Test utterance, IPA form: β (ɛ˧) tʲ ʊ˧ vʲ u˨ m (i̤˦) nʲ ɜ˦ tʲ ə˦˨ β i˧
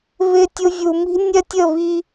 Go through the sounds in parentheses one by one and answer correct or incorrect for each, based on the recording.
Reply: incorrect: ɪ˧, correct

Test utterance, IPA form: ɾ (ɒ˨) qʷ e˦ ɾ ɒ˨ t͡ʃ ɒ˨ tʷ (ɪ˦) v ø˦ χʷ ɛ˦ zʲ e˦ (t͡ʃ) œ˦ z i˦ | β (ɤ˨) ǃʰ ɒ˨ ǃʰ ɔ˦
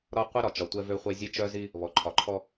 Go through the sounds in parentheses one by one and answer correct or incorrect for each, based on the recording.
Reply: incorrect: ɒ˦, incorrect: ɛ˦, correct, incorrect: ɔ˨

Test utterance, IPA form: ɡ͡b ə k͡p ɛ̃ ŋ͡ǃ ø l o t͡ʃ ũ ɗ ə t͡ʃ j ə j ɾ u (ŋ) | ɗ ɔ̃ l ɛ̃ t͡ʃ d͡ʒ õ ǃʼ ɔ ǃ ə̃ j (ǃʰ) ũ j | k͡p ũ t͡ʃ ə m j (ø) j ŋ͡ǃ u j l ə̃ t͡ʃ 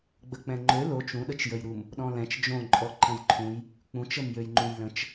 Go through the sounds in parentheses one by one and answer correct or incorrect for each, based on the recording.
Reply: incorrect: m, correct, correct

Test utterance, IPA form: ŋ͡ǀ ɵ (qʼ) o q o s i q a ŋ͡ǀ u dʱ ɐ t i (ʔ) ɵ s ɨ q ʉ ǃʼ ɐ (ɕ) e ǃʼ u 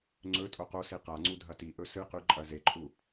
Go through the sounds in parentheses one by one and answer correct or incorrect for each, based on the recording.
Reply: incorrect: tʼ, correct, incorrect: z

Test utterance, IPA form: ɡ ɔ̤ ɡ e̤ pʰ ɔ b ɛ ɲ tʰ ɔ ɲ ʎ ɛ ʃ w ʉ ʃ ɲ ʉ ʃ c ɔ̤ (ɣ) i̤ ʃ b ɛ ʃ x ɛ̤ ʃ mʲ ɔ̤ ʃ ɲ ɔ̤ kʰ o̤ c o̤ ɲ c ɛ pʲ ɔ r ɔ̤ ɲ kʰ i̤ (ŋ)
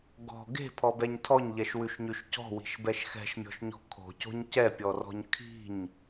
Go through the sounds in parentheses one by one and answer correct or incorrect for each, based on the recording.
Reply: incorrect: w, incorrect: ɲ

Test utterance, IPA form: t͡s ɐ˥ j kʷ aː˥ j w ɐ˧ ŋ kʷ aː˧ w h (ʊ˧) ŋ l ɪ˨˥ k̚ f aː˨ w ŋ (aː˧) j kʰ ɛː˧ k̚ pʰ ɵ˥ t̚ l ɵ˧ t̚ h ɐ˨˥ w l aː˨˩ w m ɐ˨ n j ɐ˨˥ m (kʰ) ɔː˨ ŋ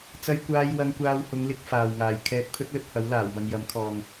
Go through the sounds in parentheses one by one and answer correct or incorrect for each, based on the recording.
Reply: incorrect: ʊ˨˧, incorrect: aː˨, correct

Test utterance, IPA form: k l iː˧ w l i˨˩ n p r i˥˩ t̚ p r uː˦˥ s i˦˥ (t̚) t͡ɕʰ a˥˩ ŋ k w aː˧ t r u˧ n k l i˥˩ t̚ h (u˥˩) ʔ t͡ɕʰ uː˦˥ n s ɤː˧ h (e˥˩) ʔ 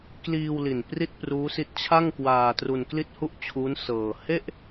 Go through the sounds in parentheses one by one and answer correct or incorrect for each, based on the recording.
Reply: correct, correct, correct

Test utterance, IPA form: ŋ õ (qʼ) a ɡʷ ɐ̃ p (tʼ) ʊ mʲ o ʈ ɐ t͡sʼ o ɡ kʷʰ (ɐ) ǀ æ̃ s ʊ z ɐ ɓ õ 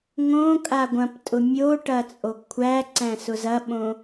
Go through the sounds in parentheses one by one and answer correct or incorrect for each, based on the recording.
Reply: incorrect: kʼ, correct, incorrect: æ

